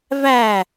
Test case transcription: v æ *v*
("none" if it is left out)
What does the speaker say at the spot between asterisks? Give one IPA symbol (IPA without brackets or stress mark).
none